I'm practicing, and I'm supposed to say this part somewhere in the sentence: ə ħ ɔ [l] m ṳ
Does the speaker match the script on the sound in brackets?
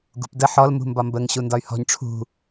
yes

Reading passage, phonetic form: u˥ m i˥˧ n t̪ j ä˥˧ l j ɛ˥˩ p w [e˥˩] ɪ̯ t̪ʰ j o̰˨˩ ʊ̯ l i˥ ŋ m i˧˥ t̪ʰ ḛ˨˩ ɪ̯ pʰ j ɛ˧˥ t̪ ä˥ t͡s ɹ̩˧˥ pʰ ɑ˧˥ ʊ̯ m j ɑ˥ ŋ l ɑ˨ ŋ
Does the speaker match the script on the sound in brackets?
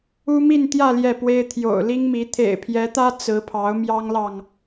no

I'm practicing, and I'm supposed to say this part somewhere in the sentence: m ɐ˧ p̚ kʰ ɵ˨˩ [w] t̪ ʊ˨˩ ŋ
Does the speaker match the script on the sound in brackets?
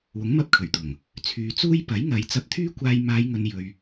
no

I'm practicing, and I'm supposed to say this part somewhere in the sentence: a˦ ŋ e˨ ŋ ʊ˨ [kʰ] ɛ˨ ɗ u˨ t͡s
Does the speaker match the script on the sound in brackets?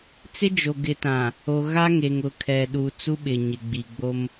yes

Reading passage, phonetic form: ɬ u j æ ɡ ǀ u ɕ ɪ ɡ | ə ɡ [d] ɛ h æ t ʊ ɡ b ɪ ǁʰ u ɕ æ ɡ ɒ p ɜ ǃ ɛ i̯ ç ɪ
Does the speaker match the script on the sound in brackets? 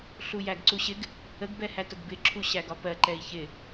no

